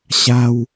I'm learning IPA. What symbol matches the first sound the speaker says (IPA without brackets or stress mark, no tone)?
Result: ɕ